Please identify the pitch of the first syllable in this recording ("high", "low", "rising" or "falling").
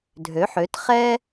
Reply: rising